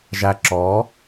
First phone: ʒ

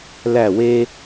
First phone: l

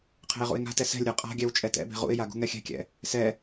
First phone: qʰ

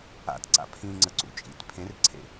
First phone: a̰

